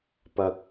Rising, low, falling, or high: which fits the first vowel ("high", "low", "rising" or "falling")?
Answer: high